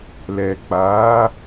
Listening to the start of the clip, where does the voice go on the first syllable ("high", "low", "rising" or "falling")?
low